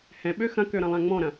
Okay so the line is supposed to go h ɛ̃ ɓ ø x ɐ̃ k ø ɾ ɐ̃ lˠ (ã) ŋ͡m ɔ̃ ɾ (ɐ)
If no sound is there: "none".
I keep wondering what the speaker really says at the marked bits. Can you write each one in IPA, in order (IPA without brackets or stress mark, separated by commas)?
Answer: ã, ɐ̃